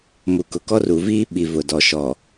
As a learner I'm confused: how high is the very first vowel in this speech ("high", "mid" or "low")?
high